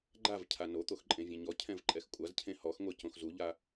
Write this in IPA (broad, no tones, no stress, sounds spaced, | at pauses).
ɡ͡ǃ a v cʰ a n o t̪ o x ǃʼ ẽ vʲ ɛ̃ ɲ ɔ cʰ ɛ̃ v ǃʼ ɛ x kʷʼ a z cʰ ẽ h ɔ x ŋʷ e c õ x z u ʎ a